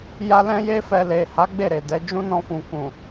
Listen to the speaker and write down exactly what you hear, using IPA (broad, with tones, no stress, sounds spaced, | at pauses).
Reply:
j a˦ l ɛ̃˦ j e˦ f ɛ˧ l e˨ h a˨˦ ɡ͡b e˦˨ ɾ e˨ d ɛ˨˦ d͡ʒ ũ˦ n ɔ̃˧ f ũ˨ k ũ˨